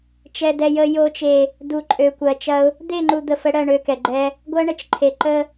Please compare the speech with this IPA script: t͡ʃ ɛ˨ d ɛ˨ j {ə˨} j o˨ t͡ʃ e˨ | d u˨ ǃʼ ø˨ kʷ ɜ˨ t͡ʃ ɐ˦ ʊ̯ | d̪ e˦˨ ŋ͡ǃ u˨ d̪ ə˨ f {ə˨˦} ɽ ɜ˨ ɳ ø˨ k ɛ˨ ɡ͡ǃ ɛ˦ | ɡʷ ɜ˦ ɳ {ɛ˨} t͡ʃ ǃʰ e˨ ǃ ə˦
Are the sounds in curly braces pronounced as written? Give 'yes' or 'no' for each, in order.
yes, yes, no

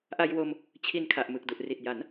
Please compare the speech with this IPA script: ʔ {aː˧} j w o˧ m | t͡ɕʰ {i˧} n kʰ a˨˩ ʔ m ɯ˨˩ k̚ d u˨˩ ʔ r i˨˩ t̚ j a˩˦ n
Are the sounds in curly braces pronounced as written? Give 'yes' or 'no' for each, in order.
no, yes

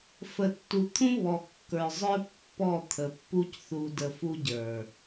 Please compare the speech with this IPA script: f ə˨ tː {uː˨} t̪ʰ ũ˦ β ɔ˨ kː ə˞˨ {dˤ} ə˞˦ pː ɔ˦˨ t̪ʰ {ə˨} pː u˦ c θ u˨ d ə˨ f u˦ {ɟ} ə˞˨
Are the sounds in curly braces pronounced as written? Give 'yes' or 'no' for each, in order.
no, no, yes, yes

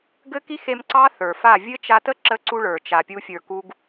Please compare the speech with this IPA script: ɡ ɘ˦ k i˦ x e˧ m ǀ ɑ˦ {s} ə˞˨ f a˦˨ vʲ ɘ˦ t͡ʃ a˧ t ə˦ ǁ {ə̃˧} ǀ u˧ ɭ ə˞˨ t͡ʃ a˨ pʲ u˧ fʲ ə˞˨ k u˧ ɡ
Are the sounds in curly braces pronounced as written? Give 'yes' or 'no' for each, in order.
no, no

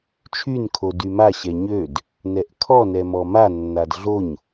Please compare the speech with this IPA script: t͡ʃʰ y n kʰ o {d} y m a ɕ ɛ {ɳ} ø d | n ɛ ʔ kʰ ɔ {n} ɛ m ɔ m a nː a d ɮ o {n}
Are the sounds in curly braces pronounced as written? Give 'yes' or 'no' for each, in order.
yes, no, yes, no

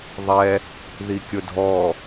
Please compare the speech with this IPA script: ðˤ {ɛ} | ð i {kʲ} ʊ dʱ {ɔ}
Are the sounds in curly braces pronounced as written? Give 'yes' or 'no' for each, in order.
yes, yes, yes

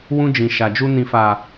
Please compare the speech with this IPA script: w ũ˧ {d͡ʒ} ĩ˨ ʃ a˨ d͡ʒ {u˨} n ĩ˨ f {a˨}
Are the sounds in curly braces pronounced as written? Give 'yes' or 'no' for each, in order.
yes, no, yes

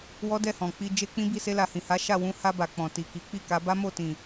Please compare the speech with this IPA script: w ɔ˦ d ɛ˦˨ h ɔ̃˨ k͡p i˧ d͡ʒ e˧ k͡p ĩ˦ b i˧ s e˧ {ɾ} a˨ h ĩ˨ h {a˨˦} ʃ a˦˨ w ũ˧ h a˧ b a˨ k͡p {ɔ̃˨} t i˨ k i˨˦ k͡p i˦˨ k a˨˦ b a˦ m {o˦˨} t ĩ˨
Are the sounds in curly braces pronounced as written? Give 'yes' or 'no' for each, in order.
no, yes, yes, yes

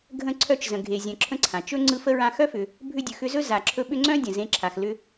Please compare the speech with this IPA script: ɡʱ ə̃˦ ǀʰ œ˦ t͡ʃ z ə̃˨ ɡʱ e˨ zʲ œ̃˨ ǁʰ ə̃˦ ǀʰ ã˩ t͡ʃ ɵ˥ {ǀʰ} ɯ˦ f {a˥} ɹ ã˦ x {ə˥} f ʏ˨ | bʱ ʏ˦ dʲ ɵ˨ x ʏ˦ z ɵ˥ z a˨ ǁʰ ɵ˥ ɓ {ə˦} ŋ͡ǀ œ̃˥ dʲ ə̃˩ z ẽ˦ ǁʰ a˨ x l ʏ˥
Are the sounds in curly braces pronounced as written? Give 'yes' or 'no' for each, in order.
no, no, no, no

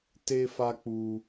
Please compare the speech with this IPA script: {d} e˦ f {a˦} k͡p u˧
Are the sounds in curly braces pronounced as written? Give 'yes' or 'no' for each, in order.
no, yes

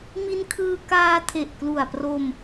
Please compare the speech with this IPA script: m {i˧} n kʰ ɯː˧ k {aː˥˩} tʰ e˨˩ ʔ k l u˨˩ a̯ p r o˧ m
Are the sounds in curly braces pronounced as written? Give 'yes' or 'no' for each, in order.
yes, no

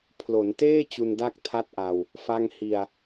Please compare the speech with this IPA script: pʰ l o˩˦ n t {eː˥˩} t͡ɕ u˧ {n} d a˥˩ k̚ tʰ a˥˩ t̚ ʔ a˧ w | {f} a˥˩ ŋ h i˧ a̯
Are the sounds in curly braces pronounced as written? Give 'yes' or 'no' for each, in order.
yes, yes, yes

